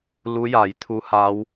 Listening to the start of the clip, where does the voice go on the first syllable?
rising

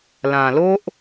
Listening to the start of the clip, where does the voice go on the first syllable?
low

